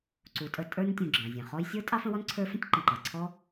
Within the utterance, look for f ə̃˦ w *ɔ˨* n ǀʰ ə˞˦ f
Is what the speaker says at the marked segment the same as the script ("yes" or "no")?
no